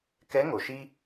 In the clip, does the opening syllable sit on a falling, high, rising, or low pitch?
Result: rising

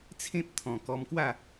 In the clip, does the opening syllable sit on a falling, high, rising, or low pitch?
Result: high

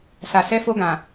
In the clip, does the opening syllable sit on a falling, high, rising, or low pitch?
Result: low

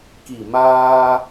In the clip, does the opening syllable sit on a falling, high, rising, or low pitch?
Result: low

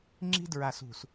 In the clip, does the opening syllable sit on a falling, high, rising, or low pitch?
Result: high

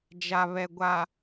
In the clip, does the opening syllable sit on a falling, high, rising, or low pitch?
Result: low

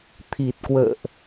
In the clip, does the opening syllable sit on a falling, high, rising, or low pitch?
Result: low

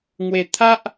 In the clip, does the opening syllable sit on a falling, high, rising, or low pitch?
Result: low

